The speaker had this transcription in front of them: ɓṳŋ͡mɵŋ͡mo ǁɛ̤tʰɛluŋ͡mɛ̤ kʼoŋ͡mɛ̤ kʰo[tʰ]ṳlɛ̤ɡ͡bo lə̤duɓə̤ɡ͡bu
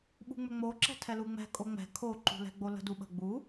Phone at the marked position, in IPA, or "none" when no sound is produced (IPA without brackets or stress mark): ǃ